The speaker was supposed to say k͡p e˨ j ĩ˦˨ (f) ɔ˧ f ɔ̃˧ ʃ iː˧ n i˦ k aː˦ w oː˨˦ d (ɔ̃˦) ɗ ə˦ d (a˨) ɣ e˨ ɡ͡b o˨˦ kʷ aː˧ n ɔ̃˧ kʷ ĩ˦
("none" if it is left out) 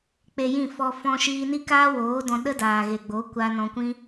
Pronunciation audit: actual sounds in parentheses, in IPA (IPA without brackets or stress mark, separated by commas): f, ɔ̃˧, aː˨